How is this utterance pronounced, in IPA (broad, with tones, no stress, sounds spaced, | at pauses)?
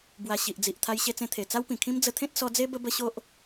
b w a˨˩ ɕ i˨ ʔ d͡z i˨ ʔ t̪ʰ a˧ j ɕ e˧ t͡s ẽ˧ t̪ʰ e˨˩ t͡s a˦ w p ĩ˨˩ kʰ ĩ˦ m d͡z ə˧ t̪ʰ ẽ˦ t̚ s ɔ˧ d͡z e˦ b ə˦ b ə˦ ɕ o˦ ʔ